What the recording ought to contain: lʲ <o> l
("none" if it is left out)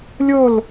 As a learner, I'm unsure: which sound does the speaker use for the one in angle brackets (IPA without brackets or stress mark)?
o